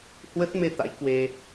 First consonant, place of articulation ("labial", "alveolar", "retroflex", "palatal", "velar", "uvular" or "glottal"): glottal